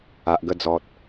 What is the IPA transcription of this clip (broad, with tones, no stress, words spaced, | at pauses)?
a˨ʔɡə˥˧d͡zɔ˨t̚